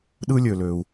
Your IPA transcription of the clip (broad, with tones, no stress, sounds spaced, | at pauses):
ɗ ɯ˦ lʲ ø˨ l ø˨ u̯